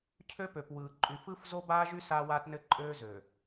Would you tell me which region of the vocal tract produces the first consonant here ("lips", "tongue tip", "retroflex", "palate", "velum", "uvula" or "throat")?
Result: palate